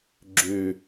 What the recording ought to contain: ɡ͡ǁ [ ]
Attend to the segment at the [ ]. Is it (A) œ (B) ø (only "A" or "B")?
B